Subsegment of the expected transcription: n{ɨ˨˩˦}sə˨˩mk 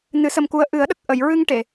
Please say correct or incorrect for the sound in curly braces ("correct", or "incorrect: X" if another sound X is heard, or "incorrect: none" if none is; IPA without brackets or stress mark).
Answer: correct